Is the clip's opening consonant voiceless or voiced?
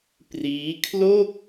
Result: voiceless